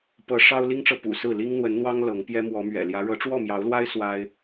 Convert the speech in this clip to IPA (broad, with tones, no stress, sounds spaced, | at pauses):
p ɤ˨˦ ʂ ɑ˦ ʊ̯ l i˦ ŋ ʈ͡ʂ ɤ˨ p ṵ˨˩ s ɹ̩˥˨ l i˦ ŋ n̪ w ə˨˦ n n̪ w ɑ˦ ŋ l ɤ˨˦ ŋ p j ɛ˦ m w ɔ˨˦ m ɥ ɛ̰˨˩ l j ä˨˦ ɻ ɤ˨˦ ʈ͡ʂ w ɔ˥˨ m j ɑ˨˦ ʊ̯ l w a˦ ɪ̯ s w a˦ ɪ̯